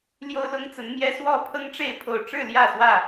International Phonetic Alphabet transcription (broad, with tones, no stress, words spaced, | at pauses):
ljo˦ʊ̯lʊ˦ŋt͡sə˨˦nmjɛ˦ swɔ˥˨pʰɤ˦ŋʈ͡ʂe˥˨ɪ̯ pʰo˨˩ʊ̯ʈ͡ʂɻ̩˥˨ ljä˥˨swä˥˨